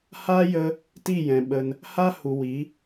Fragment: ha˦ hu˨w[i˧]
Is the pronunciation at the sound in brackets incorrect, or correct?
incorrect: i˨˦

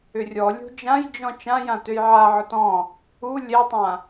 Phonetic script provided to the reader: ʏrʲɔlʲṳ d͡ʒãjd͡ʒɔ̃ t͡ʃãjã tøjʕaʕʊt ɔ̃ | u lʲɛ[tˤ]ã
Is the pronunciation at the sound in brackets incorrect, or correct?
correct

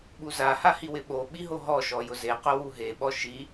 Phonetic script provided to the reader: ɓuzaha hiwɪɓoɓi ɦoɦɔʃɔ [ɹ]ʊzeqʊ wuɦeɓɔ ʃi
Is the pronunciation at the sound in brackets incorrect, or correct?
incorrect: j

